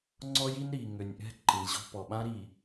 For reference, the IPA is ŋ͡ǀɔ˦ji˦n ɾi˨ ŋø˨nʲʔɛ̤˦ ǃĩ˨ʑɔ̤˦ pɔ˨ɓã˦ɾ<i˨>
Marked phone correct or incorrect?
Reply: correct